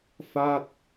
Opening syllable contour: falling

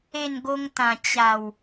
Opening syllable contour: falling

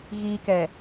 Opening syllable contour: low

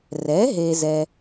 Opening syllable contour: rising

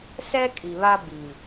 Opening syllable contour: high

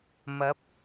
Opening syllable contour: rising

